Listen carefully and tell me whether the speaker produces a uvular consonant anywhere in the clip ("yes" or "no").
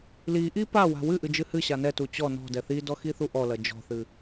no